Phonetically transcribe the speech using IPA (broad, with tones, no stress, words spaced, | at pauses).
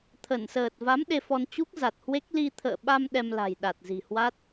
t̪ʰə˧˩nsəː˨˩t̚ va˨˦m ɗe˧fɔ˧n t͡ɕu˦˥k̚za˨˩t̚hwe˦˥k̚ li˧t̪ʰə̰ː˧˨ɓa˧m ɗɛ˧mla̤˨˩j ɗa˨˩t̚zi̤˨˩hwa˦˥t̚